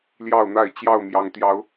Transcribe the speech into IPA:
ljɑ˥˨ʊ̯n̪a˥˨ɪ̯ t͡ɕjɑ˥˨ʊ̯mjɑ˨˦ŋ t̪jɑ˨˦ʊ̯

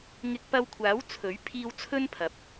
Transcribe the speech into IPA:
ŋɪ˧k̚pɐ˧wkʷʰaː˨˥w t͡sʰɵ˨˥ɥ pʰiː˥w t͡sʰɵ˥npʰɐ˨p̚

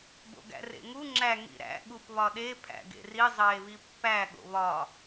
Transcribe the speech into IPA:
bo̰ɡæ̰rḛŋu ŋ͡ǁæ ŋḭɾæ̰ ɠupβɒɗe pʰæ̰ɡḛri zˤeːβipːæ ɠo̰βɒ

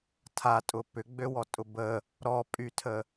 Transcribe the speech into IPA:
tʰatʼʊ pʏɡ͡bøwɔtʼʊ bə | ɾɔpʼytʰə

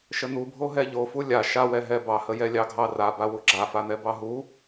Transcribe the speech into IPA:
ʃən̪ubʱo ɦɛʎofu lʲa ʃawɛ ɦɛbɑhəjɛ lʲɑɡʱɑraba wuɡ͡ǁafan̪ɛ bɑɦu

